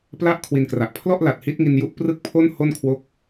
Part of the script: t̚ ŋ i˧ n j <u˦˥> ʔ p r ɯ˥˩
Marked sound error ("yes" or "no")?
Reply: no